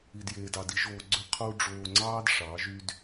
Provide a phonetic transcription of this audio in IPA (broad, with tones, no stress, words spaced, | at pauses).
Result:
i˧djeː˧dɑ˧di˦ ʒoː˧ ɡ͡ǀʏ˧ qʰu˧ ɖ͡ʐoː˧ŋ͡ǀɑː˦dʂɑ˨˦ ʒy˦d